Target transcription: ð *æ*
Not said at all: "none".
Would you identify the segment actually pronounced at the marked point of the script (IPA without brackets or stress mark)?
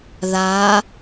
a